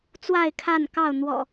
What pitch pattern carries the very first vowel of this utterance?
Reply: falling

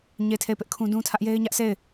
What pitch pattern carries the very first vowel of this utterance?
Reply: falling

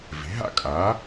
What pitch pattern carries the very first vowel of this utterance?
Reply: rising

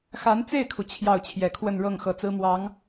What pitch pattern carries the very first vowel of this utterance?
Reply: rising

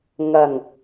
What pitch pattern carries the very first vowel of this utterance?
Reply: low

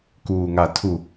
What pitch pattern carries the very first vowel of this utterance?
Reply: low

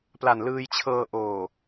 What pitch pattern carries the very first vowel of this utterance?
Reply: low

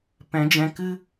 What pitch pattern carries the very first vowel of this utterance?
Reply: rising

